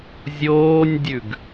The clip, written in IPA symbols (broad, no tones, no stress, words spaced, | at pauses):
zʲoːnʲdʲʉɡ